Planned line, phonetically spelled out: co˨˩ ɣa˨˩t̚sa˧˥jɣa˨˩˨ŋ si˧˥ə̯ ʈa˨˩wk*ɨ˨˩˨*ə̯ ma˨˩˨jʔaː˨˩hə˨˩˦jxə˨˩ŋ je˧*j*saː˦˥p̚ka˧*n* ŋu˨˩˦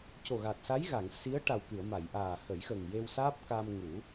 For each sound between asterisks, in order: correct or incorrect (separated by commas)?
correct, incorrect, incorrect